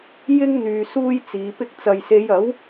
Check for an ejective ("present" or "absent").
absent